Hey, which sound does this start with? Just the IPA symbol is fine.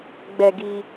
ɡ͡b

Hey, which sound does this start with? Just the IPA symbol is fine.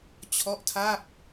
t͡ɕʰ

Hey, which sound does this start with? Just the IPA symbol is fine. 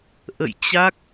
ʔ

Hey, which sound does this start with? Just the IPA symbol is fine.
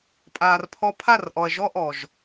pʼ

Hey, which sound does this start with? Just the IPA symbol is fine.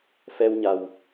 f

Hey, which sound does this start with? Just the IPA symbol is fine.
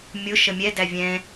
mʲ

